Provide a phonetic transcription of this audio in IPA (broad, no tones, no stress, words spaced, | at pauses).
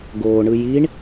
ɡoːɳɯ jiɳ